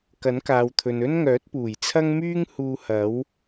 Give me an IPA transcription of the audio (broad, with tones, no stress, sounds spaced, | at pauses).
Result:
k ɐ˨˥ n k aː˨ w t̪ʰ ɵ˨ n ɵ˥ n ŋ œː˨˥ t̚ p uː˨˩ j t͡sʰ ɐ˥ ŋ m yː˥ ŋ h uː˧ h ɐ˨˥ w